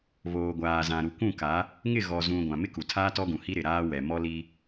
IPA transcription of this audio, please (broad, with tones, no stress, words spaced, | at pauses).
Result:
βoː˨ɡʷaː˨zã˨ ɾu˨kʷũ˦˨ka˨˦ | ŋɪ˦˨ɣɔ˨zũ˨ ɡʷã˨mɪ˦ku˨tʰaː˦ tɔ˦ɡũ˨hi˦ ɾɪ˨ ɾaː˦wɛ˨mɔ˦li˦